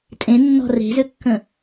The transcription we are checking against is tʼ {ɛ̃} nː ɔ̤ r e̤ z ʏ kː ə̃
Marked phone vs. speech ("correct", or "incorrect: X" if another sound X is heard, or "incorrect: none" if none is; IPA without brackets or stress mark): incorrect: ẽ